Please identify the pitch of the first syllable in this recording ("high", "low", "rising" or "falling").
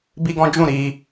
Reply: high